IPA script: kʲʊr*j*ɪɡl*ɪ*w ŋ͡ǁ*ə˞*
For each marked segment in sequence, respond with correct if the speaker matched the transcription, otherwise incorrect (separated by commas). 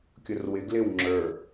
incorrect, correct, correct